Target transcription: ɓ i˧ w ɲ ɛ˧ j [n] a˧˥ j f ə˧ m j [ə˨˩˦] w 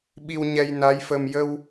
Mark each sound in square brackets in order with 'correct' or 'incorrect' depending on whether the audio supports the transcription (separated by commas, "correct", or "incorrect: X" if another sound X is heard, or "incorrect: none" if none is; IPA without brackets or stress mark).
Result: correct, incorrect: ə˧